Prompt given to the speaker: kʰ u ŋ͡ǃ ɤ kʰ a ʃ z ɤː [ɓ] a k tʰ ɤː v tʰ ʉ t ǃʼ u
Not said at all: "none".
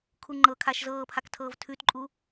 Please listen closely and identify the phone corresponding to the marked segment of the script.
pʰ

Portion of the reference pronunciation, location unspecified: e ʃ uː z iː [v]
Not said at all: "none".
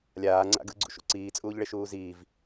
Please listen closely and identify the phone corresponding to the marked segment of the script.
v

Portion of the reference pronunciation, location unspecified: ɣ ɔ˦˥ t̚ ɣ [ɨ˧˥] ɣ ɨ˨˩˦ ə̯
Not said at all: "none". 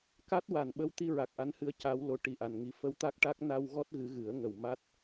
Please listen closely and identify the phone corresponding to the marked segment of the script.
ɨ˧˥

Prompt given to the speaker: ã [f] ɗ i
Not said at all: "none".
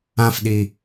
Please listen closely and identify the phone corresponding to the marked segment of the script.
f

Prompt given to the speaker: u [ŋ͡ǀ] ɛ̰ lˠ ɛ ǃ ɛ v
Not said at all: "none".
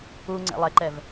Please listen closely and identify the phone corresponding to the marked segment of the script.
ŋ͡ǀ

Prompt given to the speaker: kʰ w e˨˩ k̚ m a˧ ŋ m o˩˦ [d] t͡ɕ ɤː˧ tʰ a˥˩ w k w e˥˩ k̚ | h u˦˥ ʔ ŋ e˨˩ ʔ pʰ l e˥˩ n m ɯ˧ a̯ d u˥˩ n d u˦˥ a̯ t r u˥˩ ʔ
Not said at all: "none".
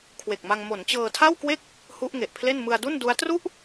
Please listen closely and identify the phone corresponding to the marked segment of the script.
n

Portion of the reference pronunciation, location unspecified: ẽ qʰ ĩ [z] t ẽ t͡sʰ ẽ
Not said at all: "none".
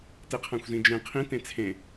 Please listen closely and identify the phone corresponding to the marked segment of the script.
none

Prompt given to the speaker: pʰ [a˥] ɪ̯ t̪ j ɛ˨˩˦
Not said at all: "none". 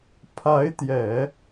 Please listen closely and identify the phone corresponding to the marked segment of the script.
a˧˥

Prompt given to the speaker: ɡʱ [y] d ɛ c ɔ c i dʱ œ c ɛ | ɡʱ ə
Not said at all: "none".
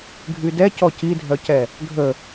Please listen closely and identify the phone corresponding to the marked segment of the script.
y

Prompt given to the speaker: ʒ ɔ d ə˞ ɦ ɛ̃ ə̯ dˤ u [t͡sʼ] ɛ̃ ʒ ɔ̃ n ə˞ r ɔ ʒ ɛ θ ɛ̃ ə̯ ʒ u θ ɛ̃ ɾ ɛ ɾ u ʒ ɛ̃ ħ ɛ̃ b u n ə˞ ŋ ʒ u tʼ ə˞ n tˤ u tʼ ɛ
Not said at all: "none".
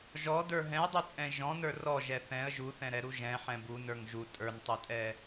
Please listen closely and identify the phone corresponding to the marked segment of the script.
t͡sʼ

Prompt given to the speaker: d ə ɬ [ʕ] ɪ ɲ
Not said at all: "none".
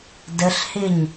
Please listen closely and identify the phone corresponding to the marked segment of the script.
h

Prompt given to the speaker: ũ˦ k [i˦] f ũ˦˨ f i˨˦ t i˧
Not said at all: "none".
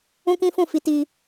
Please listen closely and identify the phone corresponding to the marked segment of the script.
ĩ˦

